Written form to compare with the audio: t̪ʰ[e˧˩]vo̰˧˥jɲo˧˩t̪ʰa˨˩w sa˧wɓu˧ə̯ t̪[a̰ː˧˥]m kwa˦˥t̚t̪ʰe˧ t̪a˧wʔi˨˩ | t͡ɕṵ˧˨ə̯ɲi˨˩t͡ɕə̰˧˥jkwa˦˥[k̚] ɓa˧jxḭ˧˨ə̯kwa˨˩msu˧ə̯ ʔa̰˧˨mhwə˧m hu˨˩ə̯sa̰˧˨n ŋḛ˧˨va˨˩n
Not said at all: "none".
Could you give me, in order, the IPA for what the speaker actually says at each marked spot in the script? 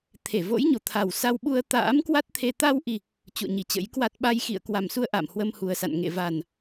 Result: e˧˩, a̰ː˧˥, t̚

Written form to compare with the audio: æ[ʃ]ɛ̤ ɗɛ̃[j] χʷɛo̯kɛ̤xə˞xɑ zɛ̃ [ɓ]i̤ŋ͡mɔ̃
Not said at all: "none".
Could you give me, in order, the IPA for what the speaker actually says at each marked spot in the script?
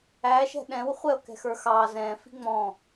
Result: ʃ, w, f

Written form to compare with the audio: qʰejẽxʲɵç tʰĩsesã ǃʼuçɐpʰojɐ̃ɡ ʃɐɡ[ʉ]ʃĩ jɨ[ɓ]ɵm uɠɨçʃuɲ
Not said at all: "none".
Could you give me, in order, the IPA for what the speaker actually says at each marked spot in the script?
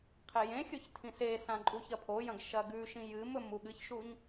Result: ʉ, m

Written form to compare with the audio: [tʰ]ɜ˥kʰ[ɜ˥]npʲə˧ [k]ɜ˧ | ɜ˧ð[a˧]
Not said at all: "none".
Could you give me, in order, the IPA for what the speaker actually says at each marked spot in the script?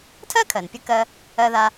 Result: tʰ, ɜ˩, k, a˧

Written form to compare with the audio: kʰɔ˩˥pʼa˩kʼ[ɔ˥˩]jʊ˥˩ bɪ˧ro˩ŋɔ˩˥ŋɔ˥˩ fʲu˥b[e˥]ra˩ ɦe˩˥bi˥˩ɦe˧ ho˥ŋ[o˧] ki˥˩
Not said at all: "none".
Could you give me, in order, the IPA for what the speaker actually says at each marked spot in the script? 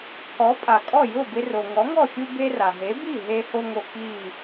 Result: ɔ˥˩, e˥, o˧

